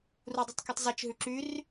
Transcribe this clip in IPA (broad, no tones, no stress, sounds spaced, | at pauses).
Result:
r u dˤ y tˤ k y tˤ z i t͡ʃ ɦ ʉ ǁ y r